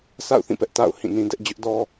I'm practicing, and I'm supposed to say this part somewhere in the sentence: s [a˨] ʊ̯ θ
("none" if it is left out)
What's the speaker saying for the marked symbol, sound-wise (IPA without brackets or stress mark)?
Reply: a̰˦˨